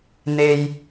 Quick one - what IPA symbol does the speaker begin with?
n̪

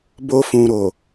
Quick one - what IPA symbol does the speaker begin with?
b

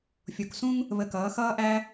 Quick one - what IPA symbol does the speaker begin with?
fʲ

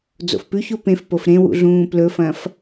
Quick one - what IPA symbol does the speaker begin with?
d͡z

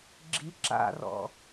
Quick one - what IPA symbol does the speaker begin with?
ɡ͡ǁ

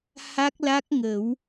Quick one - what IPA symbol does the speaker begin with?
h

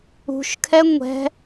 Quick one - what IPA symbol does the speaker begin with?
ṳ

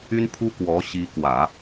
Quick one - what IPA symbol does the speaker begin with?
y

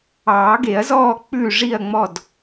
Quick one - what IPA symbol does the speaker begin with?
ɑː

